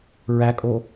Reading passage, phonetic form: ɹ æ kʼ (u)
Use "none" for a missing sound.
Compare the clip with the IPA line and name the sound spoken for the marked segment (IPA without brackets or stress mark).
o